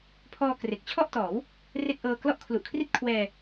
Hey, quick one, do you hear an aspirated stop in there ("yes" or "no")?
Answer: yes